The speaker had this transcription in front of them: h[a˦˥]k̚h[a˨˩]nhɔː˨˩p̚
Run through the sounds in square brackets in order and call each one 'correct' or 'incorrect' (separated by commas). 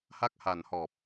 correct, correct